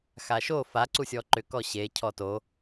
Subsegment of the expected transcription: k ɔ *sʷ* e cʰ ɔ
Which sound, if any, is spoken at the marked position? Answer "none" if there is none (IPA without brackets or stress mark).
ɕ